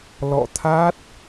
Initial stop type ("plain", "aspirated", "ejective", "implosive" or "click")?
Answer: aspirated